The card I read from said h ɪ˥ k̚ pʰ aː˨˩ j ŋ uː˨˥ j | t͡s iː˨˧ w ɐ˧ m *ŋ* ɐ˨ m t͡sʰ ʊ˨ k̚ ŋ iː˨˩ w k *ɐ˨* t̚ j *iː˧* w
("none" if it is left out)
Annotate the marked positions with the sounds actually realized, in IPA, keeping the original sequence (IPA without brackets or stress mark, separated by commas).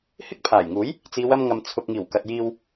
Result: ŋ, ɐ˨, iː˧